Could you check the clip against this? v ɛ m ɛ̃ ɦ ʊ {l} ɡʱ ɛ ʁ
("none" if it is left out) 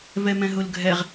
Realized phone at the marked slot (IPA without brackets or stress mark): l